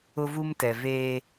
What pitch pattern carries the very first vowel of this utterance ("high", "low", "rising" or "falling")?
high